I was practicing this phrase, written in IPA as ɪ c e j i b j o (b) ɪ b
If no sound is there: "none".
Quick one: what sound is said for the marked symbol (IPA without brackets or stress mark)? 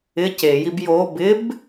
b